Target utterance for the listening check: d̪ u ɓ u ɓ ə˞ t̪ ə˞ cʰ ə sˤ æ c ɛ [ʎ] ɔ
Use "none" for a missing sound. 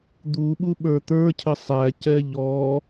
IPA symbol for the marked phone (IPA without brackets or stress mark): ʎ